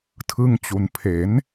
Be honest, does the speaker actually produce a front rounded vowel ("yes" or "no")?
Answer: no